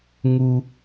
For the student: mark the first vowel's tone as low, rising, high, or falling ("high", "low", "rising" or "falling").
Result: high